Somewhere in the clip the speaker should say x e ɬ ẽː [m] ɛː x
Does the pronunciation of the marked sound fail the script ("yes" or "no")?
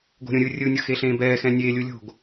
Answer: yes